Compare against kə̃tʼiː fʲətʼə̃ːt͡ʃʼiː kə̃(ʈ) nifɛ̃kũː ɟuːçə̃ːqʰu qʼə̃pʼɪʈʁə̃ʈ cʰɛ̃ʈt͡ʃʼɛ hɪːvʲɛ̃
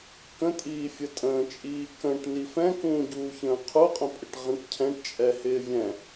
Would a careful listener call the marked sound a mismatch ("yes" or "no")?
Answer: no